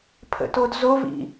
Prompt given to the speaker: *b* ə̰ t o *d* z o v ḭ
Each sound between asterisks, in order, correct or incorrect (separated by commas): incorrect, correct